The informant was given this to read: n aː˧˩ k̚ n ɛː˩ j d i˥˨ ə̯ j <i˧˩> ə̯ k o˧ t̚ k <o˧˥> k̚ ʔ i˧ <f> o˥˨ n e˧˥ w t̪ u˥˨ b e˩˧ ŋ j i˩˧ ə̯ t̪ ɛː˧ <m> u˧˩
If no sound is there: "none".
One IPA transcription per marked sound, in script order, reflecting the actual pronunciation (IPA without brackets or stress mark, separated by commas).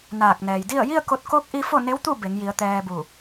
i˥˨, o˧˥, f, b